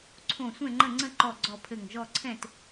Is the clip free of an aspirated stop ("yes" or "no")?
no